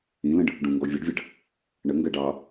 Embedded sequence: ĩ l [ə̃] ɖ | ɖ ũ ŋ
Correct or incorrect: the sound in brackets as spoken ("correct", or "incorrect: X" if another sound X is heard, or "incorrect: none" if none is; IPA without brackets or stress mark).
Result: correct